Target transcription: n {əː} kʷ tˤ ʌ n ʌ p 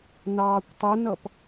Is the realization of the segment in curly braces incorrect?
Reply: yes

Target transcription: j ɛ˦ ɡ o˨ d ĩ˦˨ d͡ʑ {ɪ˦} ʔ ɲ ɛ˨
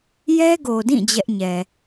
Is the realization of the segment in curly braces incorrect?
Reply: yes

